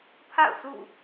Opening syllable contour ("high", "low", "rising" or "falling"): falling